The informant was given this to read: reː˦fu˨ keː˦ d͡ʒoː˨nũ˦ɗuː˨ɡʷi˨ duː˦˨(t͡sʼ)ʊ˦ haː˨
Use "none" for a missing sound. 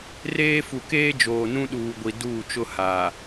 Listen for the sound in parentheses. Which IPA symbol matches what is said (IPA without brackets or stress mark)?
t͡ʃ